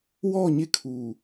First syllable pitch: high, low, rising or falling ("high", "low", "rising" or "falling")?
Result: falling